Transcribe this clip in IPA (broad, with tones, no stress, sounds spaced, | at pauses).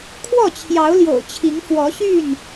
kʰ w ɔ˥˨ t͡ɕʰ j ɑ˨˦ ʊ̯ l j o̰˨˩ ʊ̯ t͡ɕʰ i˨˦ ŋ f w ɔ˨˦ ɕ y˥˨ n